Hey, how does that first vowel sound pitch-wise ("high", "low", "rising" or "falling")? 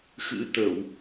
rising